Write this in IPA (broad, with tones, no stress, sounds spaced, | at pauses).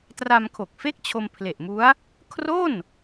t r a˧ m kʰ o˨˩ k̚ f e˥˩ k̚ t͡ɕʰ o˧ m pʰ l e˨˩ ʔ m u˦˥ a̯ | kʰ r o˥˩ n